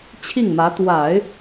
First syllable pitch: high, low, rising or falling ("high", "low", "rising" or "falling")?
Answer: falling